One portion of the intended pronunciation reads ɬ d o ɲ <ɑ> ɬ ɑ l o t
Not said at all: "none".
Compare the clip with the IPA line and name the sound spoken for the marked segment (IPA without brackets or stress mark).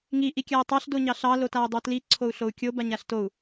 ɑ